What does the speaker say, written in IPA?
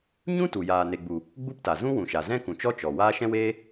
ɲ ũ˦ t u˨ j aː˨ n e˨ ɡ͡b u˨ | ɡ͡b u˦ p t a˨ z ũ˦ w ũ˨ ʃ a˨ z ɛ̃˦ k ũ˨ t͡ʃ ɔ˦ t͡ʃ ɔ˨ w aː˦ ʃ ɛ̃˦ w eː˦

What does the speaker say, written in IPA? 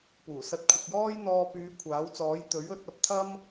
p uː˨˩ s ɐ˧ t̚ kʷʰ ɐ˧ k̚ j ɔː˥ j n̪ ɔː˧ p yː˨˧ kʷʰ aː˨˥ w t͡s ɔː˨˥ j t̪ ɵ˨˥ ɥ ɵ˨˥ t̚ ɐ˨ p̚ t̪ʰ ɐ˥ m

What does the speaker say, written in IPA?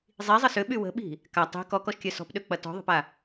zˤ i zˤ ə s ʏ ɓ y w ə̤ ɓ i̤ | k a tˤ i̤ k ɔ k ɔ ʃ kʲ œ s ɔ̤ p ɗ ø k͡p ɐ t ɔ̤ ðˤ ə̤ p a

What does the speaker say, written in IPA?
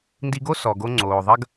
n d i˧ ɡ o˦ s ɔ˨ ɡ o˧ ŋ͡ǀ oː˨ ðˤ ɐ˦ ɡ

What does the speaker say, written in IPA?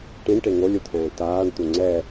ʈ ĩ ɳ ʈ e ŋ o lʲ u t̪ʰ ɛ̃ː t aː ɳ t̪ u ŋ͡ǀ ɛ

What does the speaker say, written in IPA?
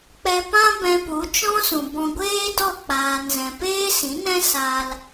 k͡p ɛ˧ p ã˦ b ɛ̃˧ p u˨˦ t͡ʃ ɔ̃˦ s ũ˨ b ɔ̃˧ ɡʷ eː˦ d ɔ˦˨ k͡p aː˧ n z ɛ̃˨ p eː˦ s ĩ˨˦ n ɛ̃˦ s a˧ l

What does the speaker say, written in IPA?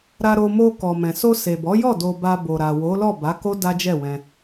ɾ a˧ ɾ o˧ m o˧ k ɔ˨ m ɛ̃˨ s o˧ s e˨ b ɔ˨˦ j ɔ˦˨ d o˧ b a˧ b o˨ ɾ a˨ w o˨˦ l ɔ˦˨ b a˨˦ k o˦ d a˦ d͡ʒ ɛ˦˨ w ɛ̃˧

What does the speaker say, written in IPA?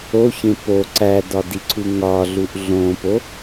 o ç ẽ p o ǀ æ d ɒ d i ǀʰ u ŋ ɒ ɮ u ʔ ɮ õ p o

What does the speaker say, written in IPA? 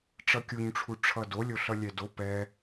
ʈ͡ʂ ʌ kʲ u ɲ ʈ͡ʂʰ u ʈ͡ʂʰ ʌ d o lʲ o ɬ ʌ lʲ ɛ d o p ɛ

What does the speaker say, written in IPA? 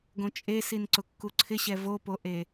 ɡ õ t͡ʃʼ e s i n ǀ ʊ kː u ǀʰ ɪ ɕ ɛ v o p o ʔ e

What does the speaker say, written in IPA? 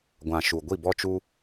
ɡʷ ã˨ ʃ u˨ ɡʷ i˦˨ b ɔ˦ t͡ʃ u˦

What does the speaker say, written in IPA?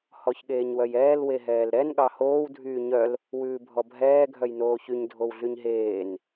h ɔ ç ɠ eː ɲ w œ j ɛː l w e ɦ ɛː l ɾ ɛ n ɠ ɑ h oː w dʱ yː ɲ œ l | w ʉː bʱ ɔ bʱ ɛː ɡʱ œ j n oː ç y ɲ dʱ o w ɮ y ɲ ɦ eː n

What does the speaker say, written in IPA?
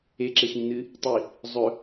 e ǁ e x ĩ n ɨ | tˤ i | zˤ ɵ

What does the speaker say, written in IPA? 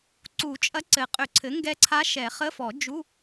ǀ u˨˩˦ t͡ʃʼ ɐ˧˥ ǀ ɘ˨˩ qʼ ʏ˨˩˦ ǀʰ ɘ˩˥ ŋ ɡ ɛ˧˥ ǀʰ a˧˥ ʃ ɛ˨˩˦ χ ə˧˥˧ f ɔ˨˩˦ d͡ʒ u˧˥˧

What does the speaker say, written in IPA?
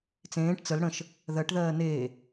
t͡s ẽː ʈ t͡s ə l ɽ ə̃ ʃ | ð ɜ ʈ ð ɜː n eː

